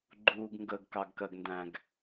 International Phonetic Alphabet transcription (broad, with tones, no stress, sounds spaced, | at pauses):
ɡ͡ǃ uː˩ ɡ ŋ ɡ əː˩ ɡ k ɑ˩ ɡ k ɜ˩ ɡ n d æ̃˩ ɡ